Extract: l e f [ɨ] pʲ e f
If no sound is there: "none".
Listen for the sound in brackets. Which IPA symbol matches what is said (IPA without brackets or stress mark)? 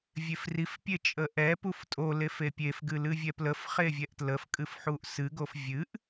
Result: e